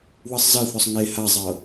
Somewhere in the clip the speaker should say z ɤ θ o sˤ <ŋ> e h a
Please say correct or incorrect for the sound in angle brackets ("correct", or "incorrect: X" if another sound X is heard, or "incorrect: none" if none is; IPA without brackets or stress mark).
correct